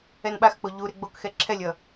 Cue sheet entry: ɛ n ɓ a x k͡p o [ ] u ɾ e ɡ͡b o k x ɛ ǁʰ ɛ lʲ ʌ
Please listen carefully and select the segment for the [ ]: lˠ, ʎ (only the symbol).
ʎ